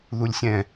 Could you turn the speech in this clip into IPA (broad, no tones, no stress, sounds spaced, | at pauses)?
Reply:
ð u lʲ sʲ ɛ̃